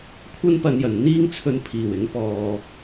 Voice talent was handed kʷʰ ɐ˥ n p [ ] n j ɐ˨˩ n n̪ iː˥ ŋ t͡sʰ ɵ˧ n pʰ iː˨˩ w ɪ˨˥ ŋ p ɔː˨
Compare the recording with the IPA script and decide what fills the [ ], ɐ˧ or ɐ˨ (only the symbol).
ɐ˧